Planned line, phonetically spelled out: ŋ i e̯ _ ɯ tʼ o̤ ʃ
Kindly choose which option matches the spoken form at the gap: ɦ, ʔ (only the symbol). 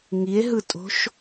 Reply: ɦ